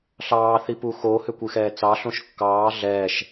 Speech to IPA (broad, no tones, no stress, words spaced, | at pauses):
ɬɑːθi puxohʏ kʷɨxɛːt͡sɑɬõʃ kːɑː ɮɛːʃ